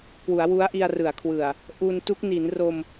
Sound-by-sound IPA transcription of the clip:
k w u˩˦ a̯ w u˦˥ a̯ ʔ i˧ a̯ r ɯ˩˦ a̯ kʰ w ɯ˨˩ a̯ | ʔ u˧ n t u˦˥ k̚ n i˩˦ n r o˧ m

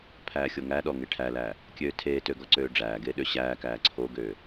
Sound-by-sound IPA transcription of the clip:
pʰ æː xʲ o ŋ æ ɗ ɔ ŋ e ʈʰ æ l æː | kʲ øː tʰ eː t ø ɡ ɔ ǀ øː ɖ͡ʐ æː ɡ eː ɗ ø ɕ æː k æː ǀʰ o ɡ øː

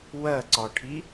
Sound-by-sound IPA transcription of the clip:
w ɜ ǀ ɒ ʈʰ i

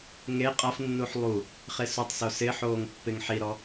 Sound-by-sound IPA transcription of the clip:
ŋ e qʼ a f nː u ħ lˠ u | χ e s u tˤ s o s ɪ ħ oː ŋ pː ɪ ŋ ħ i ɾ ɔ

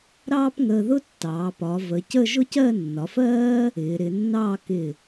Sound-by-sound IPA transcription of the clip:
ɾ ɑː˥ p ŋ əː˧ ð ʊ˥ tː ɑː˩˧ p ɒ˩˧ v ə˩˧ c ə˥˧ ʒ ʊ˥ c ɜ˥˧ nː ɒ˩˧ f ɜː˥ | ɪː˩˧ ɾ ɪ˩˧ nː ɑː˥˧ k ɪ˧˩

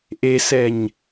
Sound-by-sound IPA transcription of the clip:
ʔ e s ɛ ɲ

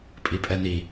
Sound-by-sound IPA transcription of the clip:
pʼ i pʼ ɛ n i

